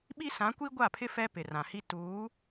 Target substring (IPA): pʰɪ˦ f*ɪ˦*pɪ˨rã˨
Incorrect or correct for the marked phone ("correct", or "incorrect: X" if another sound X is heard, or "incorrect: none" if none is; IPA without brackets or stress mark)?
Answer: incorrect: ɛ˦